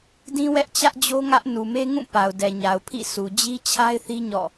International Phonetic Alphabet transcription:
d ĩ˦ w ɛ˦ ʔ t͡ɕ ä˦ ʔ d͡ʑ o˦ ŋ ä˦ ʔ n u˨ m e˦ ŋ ũ˦˨ p a˨ ʊ̯ d ɛ˨ ɲ a˨ ʊ̯ pʰ ḭ˦˨ s u˨ d͡ʑ i˦ t͡ɕʰ a˦ ɪ̯ θ i˦ ɲ ɔ̰˦˨

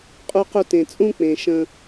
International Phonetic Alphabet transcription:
qʼ u˧ q u˧ t ẽ˨ t͡sʼ ũ˦ k͡p ẽ˨ ʃ ə̃˧

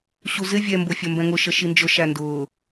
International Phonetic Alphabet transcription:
ɕ u z ɪ vʲ ɛ m b ʊ fʲ ʌ m b ɛ̃ ŋ ʊ ʃ ə ʃ i n d͡ʒ ʊ ʃ æ n d ʊː

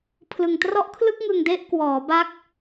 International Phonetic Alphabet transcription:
pʰ l ɯ˨˩ ŋ t r ɔ˦˥ ʔ kʰ l ɯ˥˩ k̚ ŋ ɯ˧ ŋ d e˦˥ ʔ k w ɔː˩˦ b a˦˥ k̚

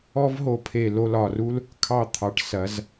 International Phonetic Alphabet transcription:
ɔ˥ v ɦ o˧ pʰ e˧˩ l o˧ l ɒ˧˩ r u˥ l | kʰ ɑ˧˩ t̪ʰ ɑ˩˧ ʈ s ɐ˩˧ z

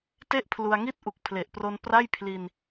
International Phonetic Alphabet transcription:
t e˥˩ ʔ pʰ l u˧ a̯ ŋ i˥˩ t̚ ʔ u˨˩ k̚ pʰ l e˨˩ ʔ p r o˧ n p r a˥˩ j pʰ l i˧ n

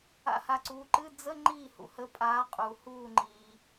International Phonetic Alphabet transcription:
a̰˧˩ h a˧˩ ǀ uː˨˦ ǃ ɨ˧˥˧ d͡z ə˧˥˧ ŋ͡ǃ iː˥˩ h ṵ˩ h ə˨˦ pʼ aː˨˦ qʼ u˩ h uː˧˩ ŋ͡ǃ iː˩

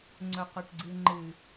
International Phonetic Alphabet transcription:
ŋ͡ǀ ʊ qʷ ə ʈ ɡ͡ǀ ɨ ŋ͡ǃ ɨ

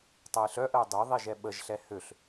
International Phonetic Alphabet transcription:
tˤ ɛ ɪ̯ ɬ œ ʔ ə ʊ̯ dˤ y ðˤ i ʒ ɛ ɓ ə ʒ ɬ ɛ h ø ɬ

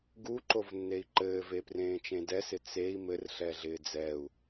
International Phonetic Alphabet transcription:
ɡ u ǃ o v nː e i̯ ǃ ɘː v e p r ẽː t͡ʃ ẽ d ɛ s ɪ t͡s e i̯ m ɘ r ɬ ɛ ɮ ɪː d͡z ɛ u̯

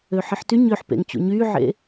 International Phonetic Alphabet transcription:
ø ħ i ħ t y ɲ ø ħ p ḛ ŋ t͡ɕ ṵ ɲ yː ʕ ḛ

